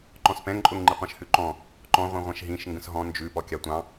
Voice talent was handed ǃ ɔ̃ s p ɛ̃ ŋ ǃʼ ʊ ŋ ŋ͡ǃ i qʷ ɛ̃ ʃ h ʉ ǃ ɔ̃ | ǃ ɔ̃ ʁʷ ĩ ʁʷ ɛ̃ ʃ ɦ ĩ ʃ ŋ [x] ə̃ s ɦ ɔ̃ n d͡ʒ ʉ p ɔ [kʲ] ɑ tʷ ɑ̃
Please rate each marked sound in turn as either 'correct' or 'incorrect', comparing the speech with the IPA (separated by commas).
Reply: incorrect, correct